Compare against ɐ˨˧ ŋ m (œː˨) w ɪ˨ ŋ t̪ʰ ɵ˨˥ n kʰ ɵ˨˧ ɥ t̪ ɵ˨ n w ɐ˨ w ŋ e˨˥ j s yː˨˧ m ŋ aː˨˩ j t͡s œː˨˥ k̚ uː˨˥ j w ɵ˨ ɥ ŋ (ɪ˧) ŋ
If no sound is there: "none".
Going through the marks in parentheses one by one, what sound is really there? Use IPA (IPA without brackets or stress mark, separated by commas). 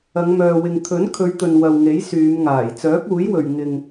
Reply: œː˨, ɪ˧